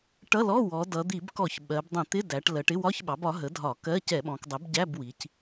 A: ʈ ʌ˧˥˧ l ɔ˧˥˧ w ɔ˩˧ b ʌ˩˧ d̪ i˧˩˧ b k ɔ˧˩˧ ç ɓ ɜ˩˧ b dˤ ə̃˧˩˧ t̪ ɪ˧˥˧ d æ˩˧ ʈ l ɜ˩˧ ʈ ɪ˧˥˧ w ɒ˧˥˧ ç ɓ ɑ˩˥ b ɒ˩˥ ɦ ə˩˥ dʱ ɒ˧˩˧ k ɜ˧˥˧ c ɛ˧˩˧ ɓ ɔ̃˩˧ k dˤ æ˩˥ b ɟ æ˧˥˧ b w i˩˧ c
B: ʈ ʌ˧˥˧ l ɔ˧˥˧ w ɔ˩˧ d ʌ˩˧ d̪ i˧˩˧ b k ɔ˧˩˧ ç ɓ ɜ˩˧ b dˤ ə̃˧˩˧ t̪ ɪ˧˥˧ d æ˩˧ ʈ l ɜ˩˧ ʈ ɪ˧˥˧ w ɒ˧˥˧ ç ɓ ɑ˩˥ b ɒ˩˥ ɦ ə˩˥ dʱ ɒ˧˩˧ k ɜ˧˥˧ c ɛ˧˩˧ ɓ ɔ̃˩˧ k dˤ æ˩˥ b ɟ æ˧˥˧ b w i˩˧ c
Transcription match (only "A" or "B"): B